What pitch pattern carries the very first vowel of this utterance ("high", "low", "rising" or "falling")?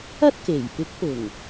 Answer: high